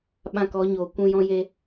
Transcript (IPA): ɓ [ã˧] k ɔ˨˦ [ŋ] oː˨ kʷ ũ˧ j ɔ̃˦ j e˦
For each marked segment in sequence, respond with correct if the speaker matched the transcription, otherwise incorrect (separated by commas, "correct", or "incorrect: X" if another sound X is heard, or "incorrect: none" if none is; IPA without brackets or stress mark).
correct, incorrect: ɲ